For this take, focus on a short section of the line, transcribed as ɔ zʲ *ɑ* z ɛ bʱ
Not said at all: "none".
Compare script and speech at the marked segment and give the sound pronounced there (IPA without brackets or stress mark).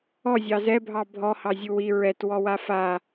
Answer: ɑ